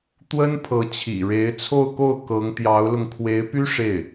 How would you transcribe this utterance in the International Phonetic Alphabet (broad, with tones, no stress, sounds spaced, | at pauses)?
t̪ w ə˥ n pʰ ɤ˧˥ t͡ɕʰ ḭ˨˩ ɻ e˧˥ ɪ̯ t͡sʰ o˥˧ ʊ̯ k o˥˩ ʊ̯ k ɤ˧˥ ŋ t̪ j ɑ˧˥ ʊ̯ l ʊ˧ ŋ kʰ w e˧˥ ɪ̯ p y˥ ʂ e˥˩ ɪ̯